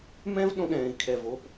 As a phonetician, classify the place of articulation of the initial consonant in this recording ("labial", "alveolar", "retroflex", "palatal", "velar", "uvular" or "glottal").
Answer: labial